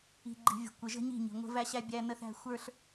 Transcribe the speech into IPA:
i̤˨ ɡ͡ǃ i̤˨ vʲ ə̤˨ kʷ ɪ˨ ʒ ə̤˦ ɲ i̤˦˨ ɲ i̤˨ ŋʷ ə̤˦ v æ˦ ɕ æ˦ bʲ æ˦ n ə˦ θ æ̤˦ xʷ ə˞˦ ɬ

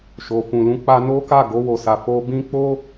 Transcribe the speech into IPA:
ʃ o˨ f ũ˨ l ũ˨˦ k͡p a˧ n o˦ k a˦˨ ɡ o˧ w o˨ s a˨ f o˧ b ĩ˦ k͡p o˦

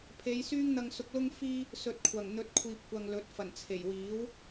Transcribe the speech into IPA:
pʰ e˨˧ j s yː˥ ŋ n̪ ɐ˧ ŋ s ʊ˧ k̚ l ʊ˥ ŋ f iː˥ | s ɵ˨ t̚ kʷʰ ɐ˨˩ ŋ n̪ ɵ˨˥ t̚ kʷʰ iː˨ p̚ kʷ ɐ˨ ŋ l ɵ˨˥ t̚ f ɐ˨˩ n t͡sʰ e˨˩ j w iː˨˥ w

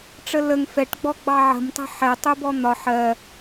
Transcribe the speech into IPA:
ʈ͡ʂ ə l ə ŋ f ɛ ʈ ɡ͡b ɔ ɡ͡b ɑ ʕ ə̤ m tˤ ə̤ ħ ɛ tˤ u b ɔ n̪ ɒ ħ ɜ

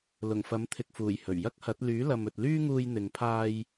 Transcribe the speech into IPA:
l ʊ˨˩ ŋ f ɐ˨˥ m t̪ʰ ɪ˨ k̚ f uː˨˩ j h ɵ˨˩ ɥ j ɐ˥ k̚ h ɐ˨˥ t̚ l yː˨˥ l ɐ˨ m ɵ˨ t̚ l yː˥ ŋ uː˧ j n̪ ɪ˨ ŋ pʰ aː˧ j

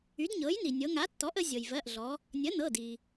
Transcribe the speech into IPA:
y˩˥ d ɲ ɤ˩˥ j n i˩ nʲ ɤ˩˧ ŋ a˩˥ tː ɔ˩˥ ʔ ə˩˧ zʲ ɤ˩ j v ɜ˩˧˩ ʔ ɮ ɔ˩˧ | nʲ ə˩˥ n ɤ˩˧˩ d i˩

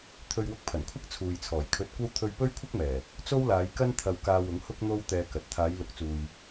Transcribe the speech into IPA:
t̪ʰ ɵ˧ ɥ w ʊ˧ k̚ pʰ ɐ˨˩ n kʷʰ ɐ˥ k̚ t͡sʰ uː˨ j t͡sʰ ɔː˨˩ j kʰ ɵ˧ t̚ kʷ ɐ˥ w t̪ʰ ɵ˧ ɥ p ɵ˥ ɥ kʷʰ ɐ˥ k̚ m ɛː˨˩ | t͡s o˥ w l aː˨˧ j k ɐ˥ n t̪ʰ ɐ˧ w k aː˧ w ʊ˨˥ ŋ h ʊ˥ k̚ n̪ o˥ w t̪ ɛː˧ k ɐ˨˥ t̚ t̪ʰ aː˨˧ j l ʊ˨˥ k̚ t͡s uː˨ j

